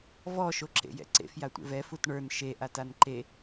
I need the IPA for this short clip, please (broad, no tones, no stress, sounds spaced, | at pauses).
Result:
v ɔ ʃ o ǁ ḛ j ɛ̰ ǀ ḛ f j a tʷ ḛ v ɛ f u t ɳ ə˞ n ʃ e ʔ a t a n ǃ e